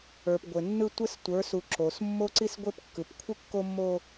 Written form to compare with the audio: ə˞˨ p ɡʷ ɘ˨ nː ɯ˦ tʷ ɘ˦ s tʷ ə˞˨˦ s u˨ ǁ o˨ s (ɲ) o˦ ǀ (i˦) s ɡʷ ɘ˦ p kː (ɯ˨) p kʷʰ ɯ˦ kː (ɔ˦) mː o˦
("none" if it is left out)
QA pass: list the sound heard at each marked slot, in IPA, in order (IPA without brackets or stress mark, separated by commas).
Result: mː, i˦, ɯ˨, o˦